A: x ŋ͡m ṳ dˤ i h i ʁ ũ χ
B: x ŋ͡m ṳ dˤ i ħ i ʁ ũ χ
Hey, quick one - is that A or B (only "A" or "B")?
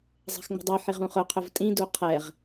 B